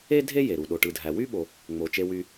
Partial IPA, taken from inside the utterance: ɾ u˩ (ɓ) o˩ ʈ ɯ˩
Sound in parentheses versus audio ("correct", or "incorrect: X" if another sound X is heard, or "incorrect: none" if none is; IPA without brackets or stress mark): incorrect: ɗ